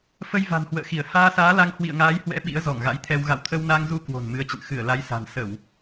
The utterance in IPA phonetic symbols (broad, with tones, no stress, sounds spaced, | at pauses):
f ə˧ j v a̤˨˩ n h w ə̰ː˧˨ x i˧˩ ə̯ h aː˧ s aː˨˦ l a˧ ŋ h w ḭ˧˨ ə̯ ŋ aː˨˦ j h w ɛ̰˧˥ ɓ ḭ˧˥ ə̯ z ɔ˧˩ ŋ ɣ a̰˧˥ j t̪ʰ ɛ˧ w ɣ a̰˧˨ w t̪ʰ ə˧ w n a˧ ŋ z u˧ k w o̤˨˩ n m ɨ˨˦ ə̯ t͡ɕ ə̰˧˨ n x ɨ˧˩ ə̯ l a˨˦ j s a̤˨˩ n s ə˧˩˨ w